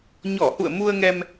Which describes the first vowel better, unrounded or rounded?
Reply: rounded